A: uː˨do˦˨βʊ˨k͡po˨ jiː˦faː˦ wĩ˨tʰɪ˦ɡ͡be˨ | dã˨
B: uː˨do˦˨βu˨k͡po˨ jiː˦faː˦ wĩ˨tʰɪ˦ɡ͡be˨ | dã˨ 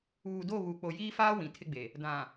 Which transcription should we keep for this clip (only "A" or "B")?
B